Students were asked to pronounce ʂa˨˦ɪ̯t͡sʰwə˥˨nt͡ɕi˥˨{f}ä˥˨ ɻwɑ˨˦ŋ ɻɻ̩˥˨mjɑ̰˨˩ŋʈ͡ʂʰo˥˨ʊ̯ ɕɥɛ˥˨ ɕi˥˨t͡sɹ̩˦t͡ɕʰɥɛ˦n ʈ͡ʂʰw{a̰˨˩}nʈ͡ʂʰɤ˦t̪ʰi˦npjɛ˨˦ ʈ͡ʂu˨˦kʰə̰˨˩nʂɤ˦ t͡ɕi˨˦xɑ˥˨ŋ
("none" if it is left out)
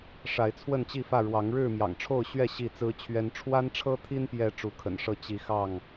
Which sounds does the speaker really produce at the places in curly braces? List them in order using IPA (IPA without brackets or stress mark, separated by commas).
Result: f, a˦